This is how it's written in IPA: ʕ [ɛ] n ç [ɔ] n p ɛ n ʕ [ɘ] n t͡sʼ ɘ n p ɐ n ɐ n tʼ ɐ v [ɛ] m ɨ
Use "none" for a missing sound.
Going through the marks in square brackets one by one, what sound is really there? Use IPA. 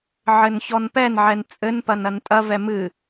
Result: ɘ, ɔ, ɛ, ɛ

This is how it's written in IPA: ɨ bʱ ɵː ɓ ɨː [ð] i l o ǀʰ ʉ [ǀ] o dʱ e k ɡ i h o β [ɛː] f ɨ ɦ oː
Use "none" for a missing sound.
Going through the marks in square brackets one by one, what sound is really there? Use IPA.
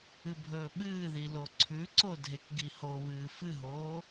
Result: ð, ǀ, ɨː

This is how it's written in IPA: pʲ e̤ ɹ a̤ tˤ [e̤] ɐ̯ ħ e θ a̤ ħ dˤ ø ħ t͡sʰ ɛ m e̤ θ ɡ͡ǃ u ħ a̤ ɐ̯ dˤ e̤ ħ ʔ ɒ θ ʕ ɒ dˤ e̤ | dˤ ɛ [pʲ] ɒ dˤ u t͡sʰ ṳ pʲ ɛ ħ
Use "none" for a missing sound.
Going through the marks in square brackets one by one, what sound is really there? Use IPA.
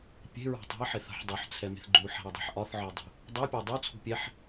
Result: e̤, pʲ

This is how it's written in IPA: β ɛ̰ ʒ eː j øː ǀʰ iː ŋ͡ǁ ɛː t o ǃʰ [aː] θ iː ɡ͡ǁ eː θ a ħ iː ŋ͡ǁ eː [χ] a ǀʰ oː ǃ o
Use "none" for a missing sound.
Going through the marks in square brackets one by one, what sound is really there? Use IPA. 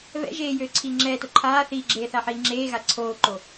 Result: aː, ɣ

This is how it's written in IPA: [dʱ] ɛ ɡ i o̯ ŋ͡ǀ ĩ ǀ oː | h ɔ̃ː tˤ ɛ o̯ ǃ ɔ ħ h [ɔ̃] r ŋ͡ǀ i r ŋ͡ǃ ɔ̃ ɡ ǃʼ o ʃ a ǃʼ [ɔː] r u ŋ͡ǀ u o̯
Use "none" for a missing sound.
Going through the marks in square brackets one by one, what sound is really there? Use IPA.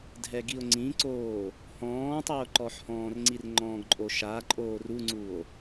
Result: dʱ, ɔ̃ː, oː

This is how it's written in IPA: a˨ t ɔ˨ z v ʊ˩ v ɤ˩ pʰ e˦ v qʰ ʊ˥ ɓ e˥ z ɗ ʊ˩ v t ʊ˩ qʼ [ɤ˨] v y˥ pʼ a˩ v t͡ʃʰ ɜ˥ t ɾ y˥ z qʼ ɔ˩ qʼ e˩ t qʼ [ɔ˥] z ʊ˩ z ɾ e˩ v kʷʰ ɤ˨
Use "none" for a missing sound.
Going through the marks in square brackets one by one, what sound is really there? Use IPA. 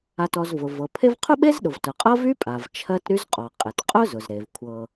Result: ɤ˥, ʊ˥

